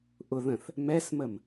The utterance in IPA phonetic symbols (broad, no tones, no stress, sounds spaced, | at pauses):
ʔ ʊ ð ə̃ θ | m ɛ s m ə m